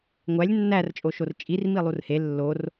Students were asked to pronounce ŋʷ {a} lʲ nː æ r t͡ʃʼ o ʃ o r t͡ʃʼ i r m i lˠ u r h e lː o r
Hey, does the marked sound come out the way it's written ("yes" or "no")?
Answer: no